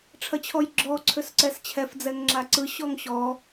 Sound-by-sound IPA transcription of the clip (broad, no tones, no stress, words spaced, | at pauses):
ʈ͡ʂʰɐt͡ɕʰɔjɡ͡ǁɔ ǀʰøsǀɛst͡ɕʰɛf d͡zɛŋŋ͡ǁaǀɯ ɕɔŋɕɔ